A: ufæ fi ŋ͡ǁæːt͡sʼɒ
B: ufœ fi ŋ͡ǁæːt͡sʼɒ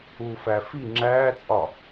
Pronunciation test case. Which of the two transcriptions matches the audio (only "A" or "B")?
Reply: A